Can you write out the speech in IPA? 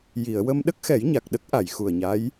j i˨˩˨ ə̯ w ə˧ m ɗ ə˦˥ k̚ x ɛ˨˩˦ j ɲ a˨˩ k̚ ɗ ə˦˥ k̚ ʔ a˨˩˨ j x u˨˩ ə̯ ɲ a˧˥ j

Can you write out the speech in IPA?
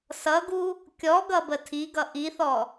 s ʌ ɡ u | kʲ ɔ ɡ ʌ b ə tʰ i ɡ ʌ ʔ i θ ɔ

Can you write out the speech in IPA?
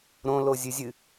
ɾ õ l o zʲ ɨ zʲ ɨ

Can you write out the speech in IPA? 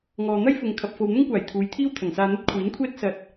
ŋ ɔː˨ n̪ ɐ˥ j f ʊ˨ ŋ kʰ ɐ˨ p̚ f o˨ w n̪ ʊ˥ ŋ kʷ aː˨˩ j t̪ʰ uː˨˧ j t̪ʰ iː˥ w t̪ʰ ɐ˨˩ ŋ s aː˧ n̪ ɐ˥ t̚ kʷʰ iː˨˥ n kʷʰ ɛː˥ t̚ s ɐ˨ t̚

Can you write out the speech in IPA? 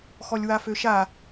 x ɔ lʲ w a f ø ʃ a

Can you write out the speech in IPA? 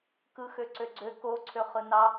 k ɯ x ø ǀ ø ɡ͡ǀ ø k o ǀʰ ø χ ɯ n ɑ

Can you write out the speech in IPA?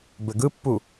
b ɘ ɡ ɯ pː u

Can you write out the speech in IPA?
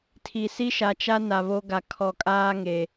tʰ i˨ s i˦ ʃ a˨ t͡ʃ a˦ n a˨ β o˦ ɡ a˨ kʰ ɔ˨ kʼ aː˦ ŋ e˨

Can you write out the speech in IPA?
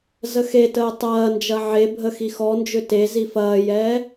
z ə x e t əː tˤ ɐː n d͡ʒ ɐ ʕ e bʱ ə x i x ɔ n d͡ʒ ʏ t e z i f ɐː j ɛː

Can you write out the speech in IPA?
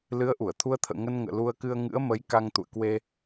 l ɨ˨˦ ə̯ ʔ u˧˩ ə̯ t̪ʰ u˧ ə̯ t̪ʰ ə̰ː˧˨ ŋ ə˧ n ŋ ə̰ː˧˨ l u˧ ə̯ k ɨ˧ ə̯ ŋ ɨ̰˧˥ ə̯ m ə˨˦ j k a˧ ŋ t̪ ṵ˧˨ ə̯ k w e˧

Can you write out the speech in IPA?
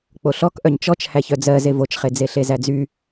k͡p o ɬ ɔ k ʔ œ ɲ t͡ʃ ɔ t͡ʃ h æ ç œ d͡z ɜ z e v o t͡ʃ χ e d͡z e ɬ e z æ d͡z y

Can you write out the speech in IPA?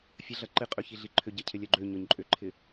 fʲ ɐ ɮ ɐ ǃ ɪ qʼ ø ç i ɮ i ǃʰ ʏ ɟ ɐ cʰ ɪ lʲ œ ɡ͡ǃ ø ɲ ɔ ɲ ǃʼ ʏ ǃʰ ɪ

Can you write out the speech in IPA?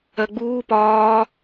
ɜ ɡ͡b uː p ɒː

